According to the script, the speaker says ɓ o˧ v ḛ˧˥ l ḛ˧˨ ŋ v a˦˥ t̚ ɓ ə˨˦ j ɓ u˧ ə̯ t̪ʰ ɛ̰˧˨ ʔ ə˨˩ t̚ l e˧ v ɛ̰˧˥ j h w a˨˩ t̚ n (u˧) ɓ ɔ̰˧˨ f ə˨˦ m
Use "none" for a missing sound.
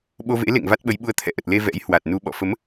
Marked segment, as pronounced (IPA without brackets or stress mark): u˧